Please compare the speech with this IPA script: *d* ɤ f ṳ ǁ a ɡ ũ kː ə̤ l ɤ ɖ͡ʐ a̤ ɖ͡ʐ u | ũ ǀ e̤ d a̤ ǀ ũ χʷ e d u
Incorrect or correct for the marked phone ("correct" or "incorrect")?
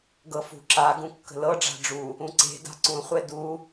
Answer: incorrect